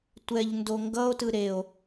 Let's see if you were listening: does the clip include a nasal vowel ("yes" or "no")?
no